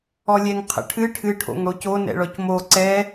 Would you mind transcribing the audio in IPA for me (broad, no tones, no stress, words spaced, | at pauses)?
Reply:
ɔlʲɛŋqʰə̰ʈʰɨ ʈʰɨʈʰo̰ŋ ɽoco nɛ̰ɭɔcmo ǀɛ